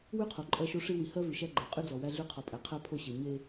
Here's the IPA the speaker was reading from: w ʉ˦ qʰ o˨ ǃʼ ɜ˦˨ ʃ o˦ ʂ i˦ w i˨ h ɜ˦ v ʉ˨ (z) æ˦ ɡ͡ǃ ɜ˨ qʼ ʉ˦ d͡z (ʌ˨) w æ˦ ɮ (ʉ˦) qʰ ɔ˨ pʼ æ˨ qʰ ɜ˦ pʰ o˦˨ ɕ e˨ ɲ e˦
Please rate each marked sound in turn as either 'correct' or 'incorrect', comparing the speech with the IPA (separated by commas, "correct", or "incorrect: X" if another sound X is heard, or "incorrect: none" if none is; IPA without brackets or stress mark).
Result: incorrect: ʃ, incorrect: ɔ˨, correct